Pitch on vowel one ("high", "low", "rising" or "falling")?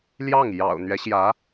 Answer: falling